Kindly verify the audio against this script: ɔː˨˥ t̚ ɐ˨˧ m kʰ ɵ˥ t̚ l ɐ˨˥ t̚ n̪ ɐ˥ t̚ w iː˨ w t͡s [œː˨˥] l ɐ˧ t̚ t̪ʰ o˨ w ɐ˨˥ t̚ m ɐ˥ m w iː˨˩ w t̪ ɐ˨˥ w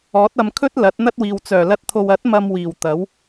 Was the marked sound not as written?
yes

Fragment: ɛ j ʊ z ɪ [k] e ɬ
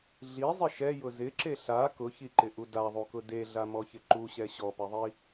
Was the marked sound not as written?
yes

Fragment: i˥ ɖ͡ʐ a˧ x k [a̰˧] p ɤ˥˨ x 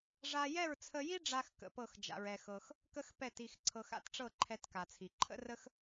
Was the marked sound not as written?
yes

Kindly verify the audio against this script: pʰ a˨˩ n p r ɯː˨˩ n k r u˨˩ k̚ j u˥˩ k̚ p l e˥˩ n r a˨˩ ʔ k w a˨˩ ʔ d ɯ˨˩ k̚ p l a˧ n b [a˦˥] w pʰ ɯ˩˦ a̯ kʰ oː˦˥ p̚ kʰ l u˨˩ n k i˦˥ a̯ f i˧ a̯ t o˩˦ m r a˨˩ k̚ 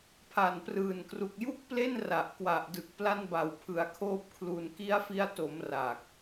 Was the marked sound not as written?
yes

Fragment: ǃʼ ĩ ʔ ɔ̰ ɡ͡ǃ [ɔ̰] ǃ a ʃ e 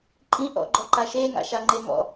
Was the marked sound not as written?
yes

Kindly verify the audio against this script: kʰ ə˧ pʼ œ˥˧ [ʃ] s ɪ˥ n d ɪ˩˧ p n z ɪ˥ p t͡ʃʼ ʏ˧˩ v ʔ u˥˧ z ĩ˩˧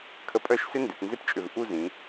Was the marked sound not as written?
no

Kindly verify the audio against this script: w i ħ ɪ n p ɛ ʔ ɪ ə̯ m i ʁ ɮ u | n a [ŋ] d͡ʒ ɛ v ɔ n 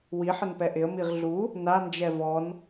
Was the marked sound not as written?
yes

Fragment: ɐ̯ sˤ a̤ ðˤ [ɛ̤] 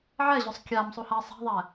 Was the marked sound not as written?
yes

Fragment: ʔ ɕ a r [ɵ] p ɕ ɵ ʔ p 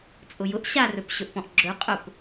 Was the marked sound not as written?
no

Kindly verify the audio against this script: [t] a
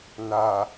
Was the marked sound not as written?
yes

